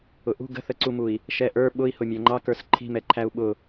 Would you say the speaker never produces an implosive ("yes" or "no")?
no